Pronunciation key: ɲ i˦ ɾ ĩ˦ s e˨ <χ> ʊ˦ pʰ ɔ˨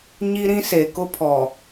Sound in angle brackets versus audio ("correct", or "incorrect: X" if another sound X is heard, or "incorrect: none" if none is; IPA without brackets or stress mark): incorrect: k